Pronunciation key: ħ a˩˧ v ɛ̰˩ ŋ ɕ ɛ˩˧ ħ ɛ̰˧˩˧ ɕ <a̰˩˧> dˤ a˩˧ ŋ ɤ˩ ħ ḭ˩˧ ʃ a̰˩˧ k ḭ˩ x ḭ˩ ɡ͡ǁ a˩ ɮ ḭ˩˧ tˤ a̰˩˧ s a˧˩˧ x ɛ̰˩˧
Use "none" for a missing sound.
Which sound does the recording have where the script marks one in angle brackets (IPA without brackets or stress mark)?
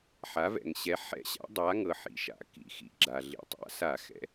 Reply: a̰˩˧